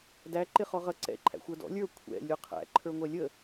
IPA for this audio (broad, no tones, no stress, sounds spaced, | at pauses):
d æ ǃ ɪ χ ɔ ʁ ʌ ǀ ɛ̰ ǃʰ æ̰ xʷ ə˞ d ɔ̰ lʲ ə˞ kʷʰ ɛ̰ lʲ u qʰ æ̰ ǃʰ ə˞ ŋʷ ɛ lʲ ə